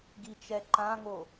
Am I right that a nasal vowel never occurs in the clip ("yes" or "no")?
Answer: no